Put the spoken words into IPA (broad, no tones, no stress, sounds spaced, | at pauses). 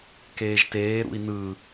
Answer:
k eː ʒ t eː ɾ ṵ i̯ n ɯ